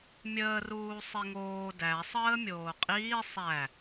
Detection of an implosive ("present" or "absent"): absent